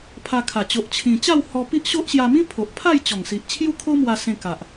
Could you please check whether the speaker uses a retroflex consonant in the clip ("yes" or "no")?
no